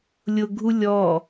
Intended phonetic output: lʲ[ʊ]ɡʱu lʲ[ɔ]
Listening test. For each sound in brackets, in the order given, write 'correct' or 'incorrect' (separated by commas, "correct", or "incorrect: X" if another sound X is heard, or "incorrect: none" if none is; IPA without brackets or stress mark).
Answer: correct, correct